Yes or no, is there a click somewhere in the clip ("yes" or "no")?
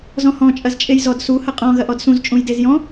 no